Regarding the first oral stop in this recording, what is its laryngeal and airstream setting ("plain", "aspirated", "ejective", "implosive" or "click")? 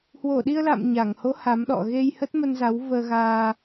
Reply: implosive